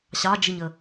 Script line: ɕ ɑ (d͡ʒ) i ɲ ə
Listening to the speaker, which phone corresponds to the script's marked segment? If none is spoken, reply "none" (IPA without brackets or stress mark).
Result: d͡ʒ